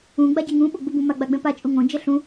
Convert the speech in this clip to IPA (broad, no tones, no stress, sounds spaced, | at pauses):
ũ ɡ͡b a ɟ e ŋ ũ ɓ o ɡ͡b u b ũ m a ɡ͡b a ɡ͡b ɛ̃ p a t͡ʃʼ u ŋ õ d͡ʒ ɛ ɬ ũ